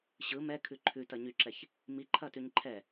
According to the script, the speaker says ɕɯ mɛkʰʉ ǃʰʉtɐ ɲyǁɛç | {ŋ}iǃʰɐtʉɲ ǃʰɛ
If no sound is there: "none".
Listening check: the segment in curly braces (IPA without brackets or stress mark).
m